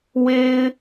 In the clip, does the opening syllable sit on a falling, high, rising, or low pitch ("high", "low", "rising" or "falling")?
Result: high